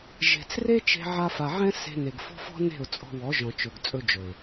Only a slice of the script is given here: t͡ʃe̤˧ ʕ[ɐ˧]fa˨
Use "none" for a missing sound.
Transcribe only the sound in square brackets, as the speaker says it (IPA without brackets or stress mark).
a˧